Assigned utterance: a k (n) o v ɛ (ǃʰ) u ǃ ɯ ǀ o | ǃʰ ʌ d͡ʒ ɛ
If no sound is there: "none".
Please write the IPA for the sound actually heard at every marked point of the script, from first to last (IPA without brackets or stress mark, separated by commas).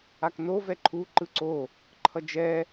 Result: n, ǃʰ